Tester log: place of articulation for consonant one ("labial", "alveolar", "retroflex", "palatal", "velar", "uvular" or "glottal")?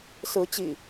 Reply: alveolar